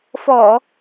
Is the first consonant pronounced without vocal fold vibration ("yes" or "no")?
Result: yes